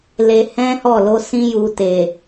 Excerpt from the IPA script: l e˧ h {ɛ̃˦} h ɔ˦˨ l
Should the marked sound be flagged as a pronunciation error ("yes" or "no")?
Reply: no